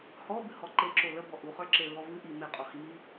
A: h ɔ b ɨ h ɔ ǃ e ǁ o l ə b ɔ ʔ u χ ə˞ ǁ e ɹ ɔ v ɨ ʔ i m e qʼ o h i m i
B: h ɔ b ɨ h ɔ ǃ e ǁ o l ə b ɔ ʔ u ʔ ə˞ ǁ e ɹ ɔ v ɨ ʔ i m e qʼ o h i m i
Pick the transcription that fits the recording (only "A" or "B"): A